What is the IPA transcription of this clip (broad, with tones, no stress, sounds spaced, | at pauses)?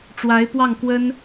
ʈ͡ʂ w a˧˥ ɪ̯ p w ɑ˥˩ ŋ k w ə˥ n